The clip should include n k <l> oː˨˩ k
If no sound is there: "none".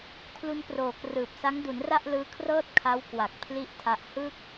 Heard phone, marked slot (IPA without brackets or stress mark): r